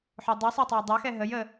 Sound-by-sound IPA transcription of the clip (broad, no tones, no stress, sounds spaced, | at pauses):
ħ o dˤ ɘ sˤ ɛ tˤ o j dˤ ɑ x ɛ ɦ ə j ə